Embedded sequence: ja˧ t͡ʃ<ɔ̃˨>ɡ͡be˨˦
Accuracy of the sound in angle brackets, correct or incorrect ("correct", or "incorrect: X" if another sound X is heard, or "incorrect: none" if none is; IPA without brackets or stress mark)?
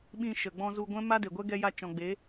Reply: correct